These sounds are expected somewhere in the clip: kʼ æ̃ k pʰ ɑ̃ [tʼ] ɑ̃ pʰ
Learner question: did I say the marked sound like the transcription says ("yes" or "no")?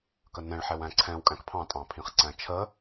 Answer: yes